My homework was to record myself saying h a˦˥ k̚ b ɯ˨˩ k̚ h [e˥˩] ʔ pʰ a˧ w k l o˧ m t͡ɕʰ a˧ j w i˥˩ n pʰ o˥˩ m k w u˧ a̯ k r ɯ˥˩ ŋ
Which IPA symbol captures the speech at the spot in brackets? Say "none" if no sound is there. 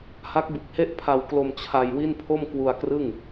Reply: e˥˩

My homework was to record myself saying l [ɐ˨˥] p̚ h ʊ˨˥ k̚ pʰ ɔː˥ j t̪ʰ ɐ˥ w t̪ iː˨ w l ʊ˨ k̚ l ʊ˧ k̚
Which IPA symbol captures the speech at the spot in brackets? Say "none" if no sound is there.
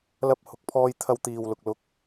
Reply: ɐ˧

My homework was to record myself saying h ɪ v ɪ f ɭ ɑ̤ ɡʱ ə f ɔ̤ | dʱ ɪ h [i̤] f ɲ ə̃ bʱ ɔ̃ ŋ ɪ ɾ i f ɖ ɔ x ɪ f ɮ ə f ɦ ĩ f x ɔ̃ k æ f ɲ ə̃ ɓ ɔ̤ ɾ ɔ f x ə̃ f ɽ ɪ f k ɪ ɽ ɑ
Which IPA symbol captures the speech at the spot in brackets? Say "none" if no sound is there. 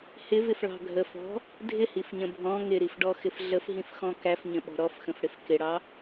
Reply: i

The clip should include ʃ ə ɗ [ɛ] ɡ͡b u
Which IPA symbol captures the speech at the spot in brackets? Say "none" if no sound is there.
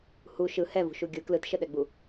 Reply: ɛ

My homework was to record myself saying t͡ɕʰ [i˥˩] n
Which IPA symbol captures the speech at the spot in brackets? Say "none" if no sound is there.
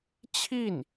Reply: i˥˩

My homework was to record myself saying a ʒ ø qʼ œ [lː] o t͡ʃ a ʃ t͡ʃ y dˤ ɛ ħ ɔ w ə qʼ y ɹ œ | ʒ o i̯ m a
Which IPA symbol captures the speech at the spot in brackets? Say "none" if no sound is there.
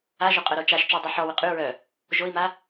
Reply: ɾ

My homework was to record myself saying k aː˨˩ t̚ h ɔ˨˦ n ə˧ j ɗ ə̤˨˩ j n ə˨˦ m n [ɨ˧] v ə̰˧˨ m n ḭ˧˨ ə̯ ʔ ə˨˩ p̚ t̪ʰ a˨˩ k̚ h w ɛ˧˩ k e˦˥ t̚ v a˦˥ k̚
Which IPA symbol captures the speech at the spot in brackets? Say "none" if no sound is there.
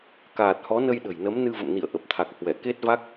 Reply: ɨ˧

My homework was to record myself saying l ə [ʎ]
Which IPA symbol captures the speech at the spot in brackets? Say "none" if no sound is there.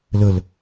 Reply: l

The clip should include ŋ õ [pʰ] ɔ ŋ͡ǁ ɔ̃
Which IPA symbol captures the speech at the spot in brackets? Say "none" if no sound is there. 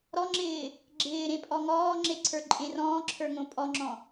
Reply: pʼ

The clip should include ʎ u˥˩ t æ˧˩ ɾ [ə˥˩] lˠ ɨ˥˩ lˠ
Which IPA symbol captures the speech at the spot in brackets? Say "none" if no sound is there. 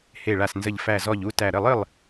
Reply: ə˥˩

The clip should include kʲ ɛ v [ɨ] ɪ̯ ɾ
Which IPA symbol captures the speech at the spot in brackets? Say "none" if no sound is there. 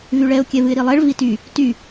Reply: ɨ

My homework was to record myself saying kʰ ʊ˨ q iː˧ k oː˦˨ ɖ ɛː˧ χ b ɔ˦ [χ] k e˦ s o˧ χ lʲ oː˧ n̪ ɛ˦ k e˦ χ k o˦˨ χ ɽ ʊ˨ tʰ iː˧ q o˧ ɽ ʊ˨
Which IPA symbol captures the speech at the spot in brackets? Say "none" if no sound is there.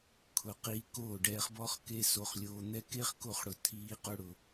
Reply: χ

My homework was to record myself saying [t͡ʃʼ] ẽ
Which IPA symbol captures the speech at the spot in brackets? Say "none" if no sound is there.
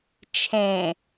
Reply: t͡ʃʰ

